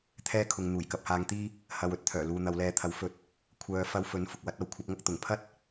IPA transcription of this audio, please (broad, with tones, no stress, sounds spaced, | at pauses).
t̪ʰ ɛː˥ kʰ ʊ˨ ŋ n̪ uː˨˩ j k ɐ˧ p̚ h aː˧ ŋ t̪ iː˥ | h ɐ˨ w ɵ˧ t̚ t̪ʰ œː˨˩ l uː˨ n̪ ɐ˨˧ w l ɛː˧ t̪ʰ ɐ˨˥ w f ɵ˧ t̚ | kʷʰ œː˨˧ f ɐ˧ w f ɵ˨˥ n f ʊ˨ k̚ w ɐ˨˥ t̚ ɐ˧ w kʷʰ ɐ˨˥ p̚ ŋ ɐ˥ k̚ t̪ ʊ˨˩ ŋ pʰ ɐ˥ t̚